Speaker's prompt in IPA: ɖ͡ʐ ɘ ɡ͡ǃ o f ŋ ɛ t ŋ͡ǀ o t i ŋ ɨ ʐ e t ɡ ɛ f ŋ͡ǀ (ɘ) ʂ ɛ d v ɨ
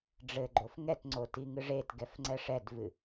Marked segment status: incorrect: ɛ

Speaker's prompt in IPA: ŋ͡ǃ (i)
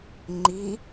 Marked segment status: correct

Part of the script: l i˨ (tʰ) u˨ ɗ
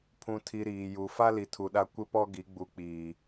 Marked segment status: correct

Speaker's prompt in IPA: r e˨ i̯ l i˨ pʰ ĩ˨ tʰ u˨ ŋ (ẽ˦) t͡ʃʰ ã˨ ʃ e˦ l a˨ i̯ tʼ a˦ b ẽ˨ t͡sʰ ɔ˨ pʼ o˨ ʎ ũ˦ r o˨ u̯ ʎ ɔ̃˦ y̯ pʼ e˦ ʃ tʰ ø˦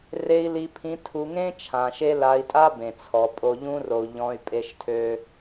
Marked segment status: correct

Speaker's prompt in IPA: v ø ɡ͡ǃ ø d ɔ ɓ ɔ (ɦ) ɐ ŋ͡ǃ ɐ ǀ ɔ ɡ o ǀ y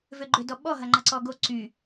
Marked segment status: correct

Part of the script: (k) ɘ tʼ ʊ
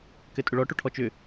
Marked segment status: correct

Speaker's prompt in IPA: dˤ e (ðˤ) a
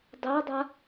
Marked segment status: incorrect: dˤ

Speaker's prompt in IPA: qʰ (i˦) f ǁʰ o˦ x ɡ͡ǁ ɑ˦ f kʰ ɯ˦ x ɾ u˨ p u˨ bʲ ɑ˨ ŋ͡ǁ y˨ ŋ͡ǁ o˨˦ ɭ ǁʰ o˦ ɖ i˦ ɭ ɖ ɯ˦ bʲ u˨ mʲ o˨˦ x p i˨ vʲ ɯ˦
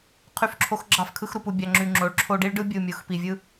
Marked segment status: incorrect: y˦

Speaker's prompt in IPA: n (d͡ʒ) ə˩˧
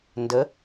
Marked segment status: incorrect: d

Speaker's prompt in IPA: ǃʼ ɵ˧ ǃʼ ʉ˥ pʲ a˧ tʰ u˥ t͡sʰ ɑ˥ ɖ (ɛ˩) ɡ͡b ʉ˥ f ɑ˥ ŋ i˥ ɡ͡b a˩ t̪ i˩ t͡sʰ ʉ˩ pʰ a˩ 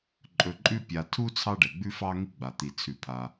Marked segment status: correct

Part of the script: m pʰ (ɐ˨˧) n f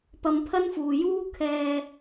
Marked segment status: incorrect: ɐ˥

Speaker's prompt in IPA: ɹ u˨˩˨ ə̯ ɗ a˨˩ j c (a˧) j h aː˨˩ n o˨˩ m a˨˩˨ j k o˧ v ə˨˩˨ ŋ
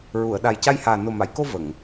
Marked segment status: correct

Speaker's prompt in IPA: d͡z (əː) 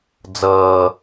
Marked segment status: incorrect: ʌː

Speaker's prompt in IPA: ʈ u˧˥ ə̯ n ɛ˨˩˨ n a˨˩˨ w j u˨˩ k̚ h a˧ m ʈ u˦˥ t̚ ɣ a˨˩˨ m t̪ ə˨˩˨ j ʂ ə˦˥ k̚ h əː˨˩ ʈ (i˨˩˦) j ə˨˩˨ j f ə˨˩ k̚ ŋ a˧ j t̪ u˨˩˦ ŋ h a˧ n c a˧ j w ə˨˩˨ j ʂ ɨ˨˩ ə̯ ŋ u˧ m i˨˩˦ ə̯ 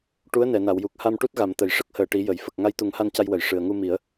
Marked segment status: correct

